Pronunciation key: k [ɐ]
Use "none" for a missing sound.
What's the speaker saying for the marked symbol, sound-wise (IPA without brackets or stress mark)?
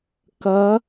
ɐ